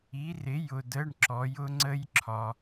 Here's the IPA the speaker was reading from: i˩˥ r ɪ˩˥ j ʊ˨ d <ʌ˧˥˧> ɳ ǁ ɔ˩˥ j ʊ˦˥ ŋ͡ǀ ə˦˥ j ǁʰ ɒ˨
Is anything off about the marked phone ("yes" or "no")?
yes